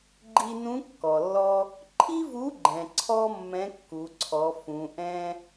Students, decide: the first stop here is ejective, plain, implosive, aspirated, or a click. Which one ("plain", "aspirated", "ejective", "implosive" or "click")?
click